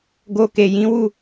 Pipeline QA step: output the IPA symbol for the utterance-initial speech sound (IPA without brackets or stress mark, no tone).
ɡ